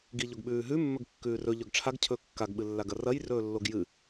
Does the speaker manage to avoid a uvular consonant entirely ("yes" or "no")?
yes